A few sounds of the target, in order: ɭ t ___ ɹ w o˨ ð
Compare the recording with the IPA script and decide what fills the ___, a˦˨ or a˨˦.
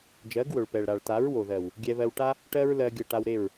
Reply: a˨˦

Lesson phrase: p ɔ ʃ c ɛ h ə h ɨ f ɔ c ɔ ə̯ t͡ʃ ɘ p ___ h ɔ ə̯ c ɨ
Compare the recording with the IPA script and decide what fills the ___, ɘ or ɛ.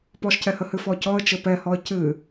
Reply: ɛ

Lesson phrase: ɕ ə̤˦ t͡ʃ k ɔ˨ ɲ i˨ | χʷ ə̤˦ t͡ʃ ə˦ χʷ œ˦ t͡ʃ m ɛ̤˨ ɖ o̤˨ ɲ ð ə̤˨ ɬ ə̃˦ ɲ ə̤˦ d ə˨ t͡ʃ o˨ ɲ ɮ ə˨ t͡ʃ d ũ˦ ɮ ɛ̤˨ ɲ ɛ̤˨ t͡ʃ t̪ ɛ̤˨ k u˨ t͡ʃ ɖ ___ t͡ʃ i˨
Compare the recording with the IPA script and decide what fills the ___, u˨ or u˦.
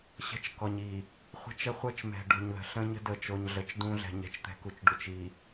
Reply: u˨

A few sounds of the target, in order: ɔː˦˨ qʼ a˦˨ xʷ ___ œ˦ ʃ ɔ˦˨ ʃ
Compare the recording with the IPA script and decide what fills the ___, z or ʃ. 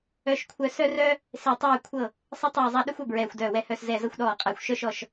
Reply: ʃ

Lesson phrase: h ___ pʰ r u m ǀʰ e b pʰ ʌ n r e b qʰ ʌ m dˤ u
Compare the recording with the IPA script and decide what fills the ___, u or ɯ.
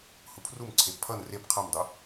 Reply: u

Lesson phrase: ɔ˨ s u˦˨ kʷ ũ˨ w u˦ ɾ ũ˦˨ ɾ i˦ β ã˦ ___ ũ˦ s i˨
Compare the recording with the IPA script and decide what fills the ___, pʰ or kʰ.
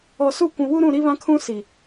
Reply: kʰ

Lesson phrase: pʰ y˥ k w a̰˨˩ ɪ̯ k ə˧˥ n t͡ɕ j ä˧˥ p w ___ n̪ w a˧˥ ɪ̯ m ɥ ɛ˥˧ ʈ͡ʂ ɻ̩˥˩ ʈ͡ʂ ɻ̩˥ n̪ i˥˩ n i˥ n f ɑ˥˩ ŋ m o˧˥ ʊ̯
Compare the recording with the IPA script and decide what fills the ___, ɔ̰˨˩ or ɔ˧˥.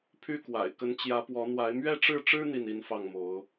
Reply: ɔ˧˥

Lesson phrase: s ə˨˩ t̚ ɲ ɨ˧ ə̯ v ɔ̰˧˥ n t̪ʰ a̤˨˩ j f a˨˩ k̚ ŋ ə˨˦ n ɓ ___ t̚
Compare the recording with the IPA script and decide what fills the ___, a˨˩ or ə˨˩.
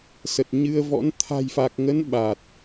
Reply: a˨˩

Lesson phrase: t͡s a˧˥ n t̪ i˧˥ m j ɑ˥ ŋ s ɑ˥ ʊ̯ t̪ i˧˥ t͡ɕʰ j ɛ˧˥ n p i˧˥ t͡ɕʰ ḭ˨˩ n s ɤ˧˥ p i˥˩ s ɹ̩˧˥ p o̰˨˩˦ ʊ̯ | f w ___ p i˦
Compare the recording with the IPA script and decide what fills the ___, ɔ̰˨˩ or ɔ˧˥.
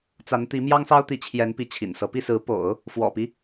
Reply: ɔ̰˨˩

